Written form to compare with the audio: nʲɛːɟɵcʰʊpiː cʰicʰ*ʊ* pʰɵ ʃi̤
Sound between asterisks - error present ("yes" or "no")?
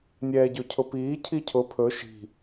no